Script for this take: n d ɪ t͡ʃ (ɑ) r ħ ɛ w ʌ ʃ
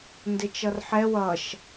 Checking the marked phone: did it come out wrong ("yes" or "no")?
yes